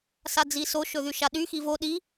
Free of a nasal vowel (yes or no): yes